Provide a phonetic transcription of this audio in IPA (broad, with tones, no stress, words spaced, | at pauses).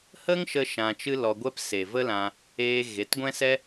hə˦ŋʃə˧ ʃã˧t͡ʃɨ˦lɔ˧ɡʷɛ˦p se˨ və˦lã˧ | eː˧ ɣe˨˦tɡʷɛ̃˦sɛ˦